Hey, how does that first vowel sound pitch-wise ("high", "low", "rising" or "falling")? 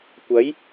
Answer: rising